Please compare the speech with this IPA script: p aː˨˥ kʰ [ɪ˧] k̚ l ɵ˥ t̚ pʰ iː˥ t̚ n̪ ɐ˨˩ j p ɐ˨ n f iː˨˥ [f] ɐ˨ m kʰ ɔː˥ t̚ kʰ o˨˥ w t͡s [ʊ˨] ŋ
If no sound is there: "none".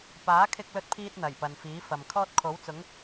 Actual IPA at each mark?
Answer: ɪ˥, f, ʊ˨˥

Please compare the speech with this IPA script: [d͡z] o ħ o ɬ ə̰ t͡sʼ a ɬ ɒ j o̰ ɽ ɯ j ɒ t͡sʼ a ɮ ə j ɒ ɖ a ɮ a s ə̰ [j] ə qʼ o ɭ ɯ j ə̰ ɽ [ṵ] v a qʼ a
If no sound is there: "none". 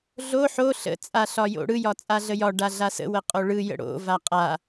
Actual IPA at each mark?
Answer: ɮ, w, o̰

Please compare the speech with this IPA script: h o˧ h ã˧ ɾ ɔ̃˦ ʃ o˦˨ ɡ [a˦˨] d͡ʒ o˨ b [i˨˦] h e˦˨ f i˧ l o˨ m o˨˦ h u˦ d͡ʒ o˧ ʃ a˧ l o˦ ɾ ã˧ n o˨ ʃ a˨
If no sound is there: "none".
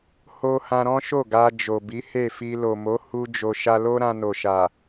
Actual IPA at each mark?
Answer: a˧, i˨˦

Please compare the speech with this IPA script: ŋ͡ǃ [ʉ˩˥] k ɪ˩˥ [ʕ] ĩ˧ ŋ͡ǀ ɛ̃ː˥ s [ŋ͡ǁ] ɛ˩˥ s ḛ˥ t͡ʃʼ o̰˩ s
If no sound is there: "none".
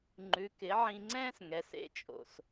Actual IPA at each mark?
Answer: ʉ˩˥, ʕ, ŋ

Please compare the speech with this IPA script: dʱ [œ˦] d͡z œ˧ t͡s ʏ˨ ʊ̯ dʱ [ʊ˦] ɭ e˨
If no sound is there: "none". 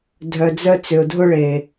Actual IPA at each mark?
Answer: œ˨, ʊ˦

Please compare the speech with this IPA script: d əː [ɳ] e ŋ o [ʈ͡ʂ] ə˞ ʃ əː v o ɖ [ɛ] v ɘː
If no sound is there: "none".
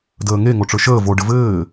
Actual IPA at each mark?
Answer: ŋ, ʈ͡ʂ, ɘ

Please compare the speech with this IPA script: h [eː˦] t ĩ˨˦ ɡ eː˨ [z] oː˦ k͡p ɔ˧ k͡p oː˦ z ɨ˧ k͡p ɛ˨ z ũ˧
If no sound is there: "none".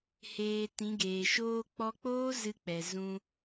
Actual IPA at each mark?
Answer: eː˨, ʃ

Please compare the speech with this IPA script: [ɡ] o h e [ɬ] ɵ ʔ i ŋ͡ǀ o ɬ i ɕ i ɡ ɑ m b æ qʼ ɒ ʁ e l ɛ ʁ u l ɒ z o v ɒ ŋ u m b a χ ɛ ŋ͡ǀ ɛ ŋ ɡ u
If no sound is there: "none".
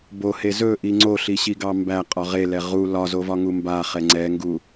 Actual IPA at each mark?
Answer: b, z

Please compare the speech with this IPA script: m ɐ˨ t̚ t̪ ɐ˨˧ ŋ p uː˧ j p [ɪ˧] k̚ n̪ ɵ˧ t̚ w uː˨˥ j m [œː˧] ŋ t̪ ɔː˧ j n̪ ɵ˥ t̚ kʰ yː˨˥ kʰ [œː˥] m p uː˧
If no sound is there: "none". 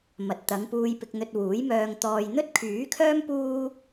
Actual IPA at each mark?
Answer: ɪ˧, œː˧, œː˥

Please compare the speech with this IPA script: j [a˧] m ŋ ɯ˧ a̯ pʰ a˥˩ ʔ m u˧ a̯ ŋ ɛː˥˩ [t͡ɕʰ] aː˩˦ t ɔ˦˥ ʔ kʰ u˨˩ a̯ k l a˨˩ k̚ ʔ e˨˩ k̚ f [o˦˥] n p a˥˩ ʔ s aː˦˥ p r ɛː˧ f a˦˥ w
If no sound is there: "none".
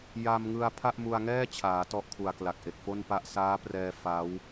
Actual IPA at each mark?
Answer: a˧, t͡ɕʰ, o˥˩

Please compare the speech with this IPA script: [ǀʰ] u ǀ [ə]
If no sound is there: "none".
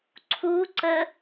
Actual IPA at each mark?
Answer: ǀʰ, ə

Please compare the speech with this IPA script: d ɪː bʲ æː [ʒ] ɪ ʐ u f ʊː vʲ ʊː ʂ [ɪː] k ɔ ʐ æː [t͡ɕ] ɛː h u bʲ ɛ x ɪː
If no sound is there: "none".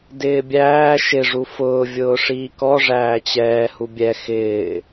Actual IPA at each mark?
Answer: ʃ, iː, t͡ɕ

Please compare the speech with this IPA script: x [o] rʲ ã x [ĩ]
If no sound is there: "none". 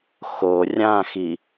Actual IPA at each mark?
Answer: o, i

